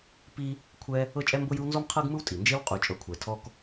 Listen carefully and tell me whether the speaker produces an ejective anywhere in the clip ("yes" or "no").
yes